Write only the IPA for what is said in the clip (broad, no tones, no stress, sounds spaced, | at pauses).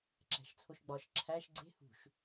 ǁ æ̤ ʃ t͡sʰ o ʃ ɡ͡b ɒ ʃ ǁʰ æ ʃ ɡ͡ǀ e̤ h ṳ ʃ